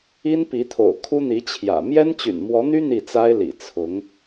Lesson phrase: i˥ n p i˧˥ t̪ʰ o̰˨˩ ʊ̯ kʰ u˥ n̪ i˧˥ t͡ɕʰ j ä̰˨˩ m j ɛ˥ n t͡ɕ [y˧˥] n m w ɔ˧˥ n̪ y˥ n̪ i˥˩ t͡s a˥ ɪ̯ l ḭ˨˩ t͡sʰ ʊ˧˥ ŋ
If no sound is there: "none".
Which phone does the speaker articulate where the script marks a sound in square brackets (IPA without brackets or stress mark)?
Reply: y̰˨˩